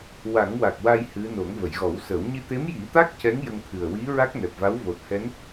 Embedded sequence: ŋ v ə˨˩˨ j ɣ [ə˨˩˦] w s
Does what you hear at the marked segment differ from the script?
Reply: yes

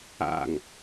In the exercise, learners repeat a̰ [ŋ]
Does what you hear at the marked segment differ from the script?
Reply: no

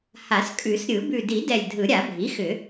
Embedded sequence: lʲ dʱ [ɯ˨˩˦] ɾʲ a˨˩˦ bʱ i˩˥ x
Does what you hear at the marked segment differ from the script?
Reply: no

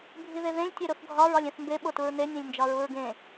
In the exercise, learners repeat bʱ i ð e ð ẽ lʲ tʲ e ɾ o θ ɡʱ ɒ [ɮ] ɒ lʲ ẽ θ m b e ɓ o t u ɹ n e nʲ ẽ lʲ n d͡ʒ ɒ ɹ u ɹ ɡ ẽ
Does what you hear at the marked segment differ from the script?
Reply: yes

